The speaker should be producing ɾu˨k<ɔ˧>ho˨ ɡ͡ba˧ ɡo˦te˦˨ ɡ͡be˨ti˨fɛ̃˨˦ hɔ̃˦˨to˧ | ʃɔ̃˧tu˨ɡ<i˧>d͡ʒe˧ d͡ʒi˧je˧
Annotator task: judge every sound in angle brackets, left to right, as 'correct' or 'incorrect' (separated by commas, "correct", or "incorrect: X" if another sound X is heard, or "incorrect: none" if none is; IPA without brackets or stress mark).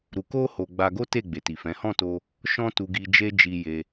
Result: incorrect: o˧, incorrect: i˨